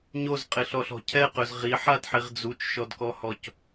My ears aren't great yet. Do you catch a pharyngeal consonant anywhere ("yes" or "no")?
yes